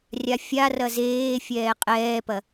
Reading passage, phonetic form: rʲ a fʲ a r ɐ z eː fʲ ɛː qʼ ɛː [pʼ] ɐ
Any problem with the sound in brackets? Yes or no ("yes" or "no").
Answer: yes